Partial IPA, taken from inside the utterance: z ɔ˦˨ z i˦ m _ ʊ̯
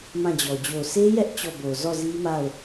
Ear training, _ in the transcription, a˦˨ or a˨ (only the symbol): a˦˨